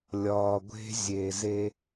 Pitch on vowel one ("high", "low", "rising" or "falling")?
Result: low